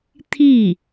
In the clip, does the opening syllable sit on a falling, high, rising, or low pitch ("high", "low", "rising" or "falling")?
falling